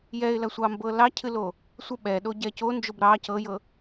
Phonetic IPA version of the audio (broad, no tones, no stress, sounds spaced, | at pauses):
j ɛ ɪ̯ l ɐ sʷ ɑ m b ɤ l ɑ cʰ ɨ l o | sʷ ɐ ɓ ɛ ɗ o ɟ ɛ c o n d͡ʒ o b ɾ ɑ c ɤ j ɤ